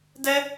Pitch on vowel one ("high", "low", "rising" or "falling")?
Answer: high